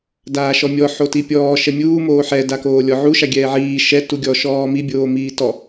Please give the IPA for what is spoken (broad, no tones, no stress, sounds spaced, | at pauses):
d aː ʃ ɔ mʲ ɔ ħ o t i pʲ ɔː ʃ ɛ mʲ uː m oː ħ ɛ d a k oː lʲ ɔ ʕ u ʃ a ɡʲ ɛː ʕ iː ʃ ɛ t u ɡʲ ɔ ʃ ɔː m i bʲ oː m iː t ɔ